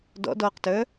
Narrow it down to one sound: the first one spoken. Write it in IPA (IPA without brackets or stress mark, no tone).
d